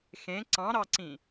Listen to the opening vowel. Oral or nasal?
nasal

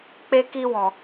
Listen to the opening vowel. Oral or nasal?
oral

